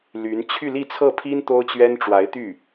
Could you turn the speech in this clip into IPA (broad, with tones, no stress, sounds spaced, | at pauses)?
l y˧˥ n t͡ɕʰ y˥˧ l i˥˧ t͡sʰ ɤ˥˩ pʰ i˥ n t̪ o˥ ʊ̯ t͡ɕ ɥ ɛ˥ n ʈ͡ʂ w a˧˥ ɪ̯ t̪ y˥˩